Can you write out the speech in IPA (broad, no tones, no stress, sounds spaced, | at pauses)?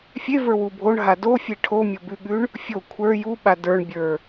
fʲ e v ə˞ w u bʱ o ɳ ɦ a d o fʲ e ʈʰ o mʲ o b ʉ ɠ ʉ ɳ | fʲ o kʷʰ ə˞ j u ɓ a d ə˞ ɳ bʲ ə˞